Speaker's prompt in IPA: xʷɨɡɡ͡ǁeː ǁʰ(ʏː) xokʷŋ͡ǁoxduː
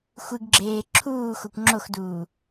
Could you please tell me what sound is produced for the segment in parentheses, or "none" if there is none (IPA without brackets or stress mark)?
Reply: uː